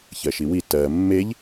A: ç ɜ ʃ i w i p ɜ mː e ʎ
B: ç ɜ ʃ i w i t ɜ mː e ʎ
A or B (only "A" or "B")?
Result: B